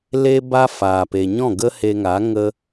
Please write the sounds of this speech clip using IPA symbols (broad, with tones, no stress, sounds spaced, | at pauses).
l e˦ b a˦ f aː˨ p e˨ ɲ ɔ̃˦˨ ɡ ə˦ h e˧ ŋ a˨˦ ŋ ə˦